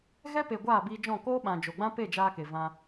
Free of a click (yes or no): yes